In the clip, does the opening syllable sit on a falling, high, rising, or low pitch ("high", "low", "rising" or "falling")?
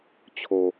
low